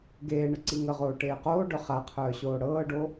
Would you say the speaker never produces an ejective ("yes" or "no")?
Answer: yes